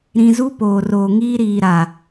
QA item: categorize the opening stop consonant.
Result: plain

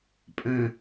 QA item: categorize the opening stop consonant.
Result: ejective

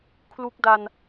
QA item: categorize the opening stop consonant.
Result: aspirated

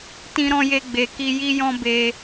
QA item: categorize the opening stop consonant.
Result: plain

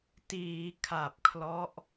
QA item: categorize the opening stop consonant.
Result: plain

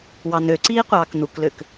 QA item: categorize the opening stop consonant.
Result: click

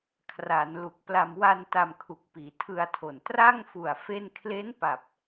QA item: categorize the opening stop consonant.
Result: aspirated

